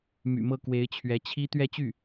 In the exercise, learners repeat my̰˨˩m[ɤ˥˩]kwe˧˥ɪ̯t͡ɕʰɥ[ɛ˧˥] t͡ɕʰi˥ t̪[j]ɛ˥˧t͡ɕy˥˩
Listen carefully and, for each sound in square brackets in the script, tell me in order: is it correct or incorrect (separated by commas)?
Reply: correct, correct, incorrect